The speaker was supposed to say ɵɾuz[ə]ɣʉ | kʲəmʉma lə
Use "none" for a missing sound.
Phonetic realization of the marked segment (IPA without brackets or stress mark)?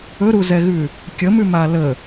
ɛ